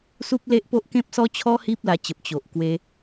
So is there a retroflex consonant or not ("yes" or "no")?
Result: no